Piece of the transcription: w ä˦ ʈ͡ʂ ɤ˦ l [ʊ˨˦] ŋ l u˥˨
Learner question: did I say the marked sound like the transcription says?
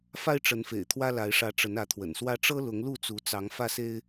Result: yes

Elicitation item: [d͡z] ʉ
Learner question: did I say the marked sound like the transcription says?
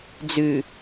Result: yes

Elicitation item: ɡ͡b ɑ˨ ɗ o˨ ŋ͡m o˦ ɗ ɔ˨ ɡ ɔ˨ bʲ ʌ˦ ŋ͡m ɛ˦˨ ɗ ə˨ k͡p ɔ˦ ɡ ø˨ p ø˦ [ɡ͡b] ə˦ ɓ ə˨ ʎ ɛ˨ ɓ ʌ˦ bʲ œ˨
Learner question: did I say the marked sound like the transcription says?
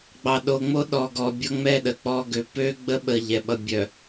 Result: yes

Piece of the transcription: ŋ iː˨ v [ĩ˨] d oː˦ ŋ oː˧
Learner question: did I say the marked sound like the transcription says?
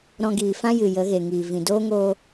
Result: yes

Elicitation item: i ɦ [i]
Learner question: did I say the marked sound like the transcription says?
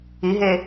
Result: no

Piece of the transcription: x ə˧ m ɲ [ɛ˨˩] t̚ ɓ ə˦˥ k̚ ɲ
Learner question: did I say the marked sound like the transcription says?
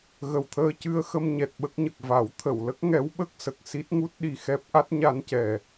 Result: yes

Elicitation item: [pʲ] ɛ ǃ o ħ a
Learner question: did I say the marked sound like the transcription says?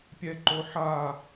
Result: yes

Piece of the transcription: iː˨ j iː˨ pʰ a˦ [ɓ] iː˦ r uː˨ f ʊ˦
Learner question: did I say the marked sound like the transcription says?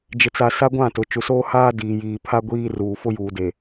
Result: no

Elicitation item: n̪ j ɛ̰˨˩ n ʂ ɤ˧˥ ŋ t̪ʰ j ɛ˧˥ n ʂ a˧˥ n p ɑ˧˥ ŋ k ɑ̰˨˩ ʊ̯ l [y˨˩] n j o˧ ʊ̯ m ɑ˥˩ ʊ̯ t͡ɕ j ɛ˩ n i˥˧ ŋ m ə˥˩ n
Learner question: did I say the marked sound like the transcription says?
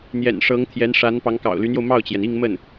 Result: no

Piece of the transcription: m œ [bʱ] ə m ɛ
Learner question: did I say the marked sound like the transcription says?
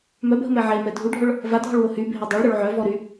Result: yes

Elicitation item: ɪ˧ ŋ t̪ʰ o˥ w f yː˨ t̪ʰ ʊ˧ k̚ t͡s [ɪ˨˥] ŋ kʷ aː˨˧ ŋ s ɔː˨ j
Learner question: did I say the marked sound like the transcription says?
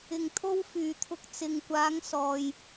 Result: no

